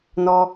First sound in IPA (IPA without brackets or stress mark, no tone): n